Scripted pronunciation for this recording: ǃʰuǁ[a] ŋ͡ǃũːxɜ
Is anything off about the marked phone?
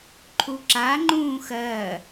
no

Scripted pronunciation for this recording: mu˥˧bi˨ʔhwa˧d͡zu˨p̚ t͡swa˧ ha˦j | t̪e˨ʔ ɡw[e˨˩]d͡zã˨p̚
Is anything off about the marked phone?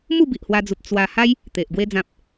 yes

